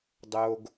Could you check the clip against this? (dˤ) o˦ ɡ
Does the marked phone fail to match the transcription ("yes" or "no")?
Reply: no